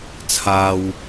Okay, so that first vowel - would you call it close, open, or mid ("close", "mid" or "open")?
open